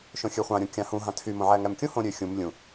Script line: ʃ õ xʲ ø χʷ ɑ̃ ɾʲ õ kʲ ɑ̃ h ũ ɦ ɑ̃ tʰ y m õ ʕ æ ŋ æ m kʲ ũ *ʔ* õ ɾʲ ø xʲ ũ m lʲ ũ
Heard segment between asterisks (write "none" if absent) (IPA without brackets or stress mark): h